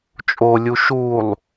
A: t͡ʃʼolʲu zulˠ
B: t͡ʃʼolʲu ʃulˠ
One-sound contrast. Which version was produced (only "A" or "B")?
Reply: B